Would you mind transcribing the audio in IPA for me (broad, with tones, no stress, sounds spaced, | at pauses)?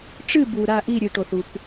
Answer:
ʈ͡ʂ ɨ˥˧ b u˨ ɾ a˥˧ ʔ i˥˧ ɾʲ ɨ˨ ʈ o˨ θ u˨ k